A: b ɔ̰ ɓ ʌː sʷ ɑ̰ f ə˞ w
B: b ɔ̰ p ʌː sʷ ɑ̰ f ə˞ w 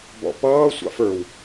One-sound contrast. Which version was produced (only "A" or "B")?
B